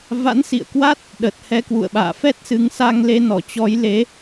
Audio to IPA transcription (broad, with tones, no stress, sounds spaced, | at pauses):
v a̰˧˥ n s ḭ˧˨ ə̯ k w a˦˥ t̚ | ɗ ə˨˩ t̚ h ɛ˧ k w ṵ˧˨ ə̯ ɓ a̰ː˧˨ f ɛ˦˥ t̚ s ɨ˨˦ ŋ s a˧ ŋ l e˧ n ɔ˧˩ t͡ɕ ɔ˨˦ j l e˨˦